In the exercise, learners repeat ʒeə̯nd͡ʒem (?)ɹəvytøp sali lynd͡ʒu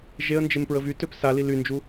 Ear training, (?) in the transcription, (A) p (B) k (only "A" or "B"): A